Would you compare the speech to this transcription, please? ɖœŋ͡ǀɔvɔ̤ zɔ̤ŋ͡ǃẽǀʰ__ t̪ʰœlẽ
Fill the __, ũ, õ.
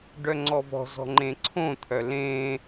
õ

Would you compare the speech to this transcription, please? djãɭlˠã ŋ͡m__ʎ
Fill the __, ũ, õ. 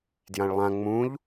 ũ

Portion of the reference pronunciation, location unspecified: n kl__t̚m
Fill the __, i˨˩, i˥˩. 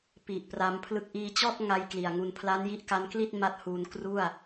i˥˩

